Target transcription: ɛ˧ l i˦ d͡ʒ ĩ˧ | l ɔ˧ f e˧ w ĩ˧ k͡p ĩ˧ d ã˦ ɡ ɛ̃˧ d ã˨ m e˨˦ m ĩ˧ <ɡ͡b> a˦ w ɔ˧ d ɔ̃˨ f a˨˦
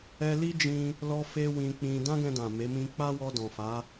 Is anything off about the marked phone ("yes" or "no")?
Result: yes